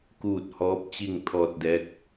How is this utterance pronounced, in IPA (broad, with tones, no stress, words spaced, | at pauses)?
kuː˥˨t̚ hɔː˧˥p̚t͡ɕi˥˨ŋt̪ʰɔː˧t̚dɛː˧˥k̚